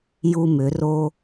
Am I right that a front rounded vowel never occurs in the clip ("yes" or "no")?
no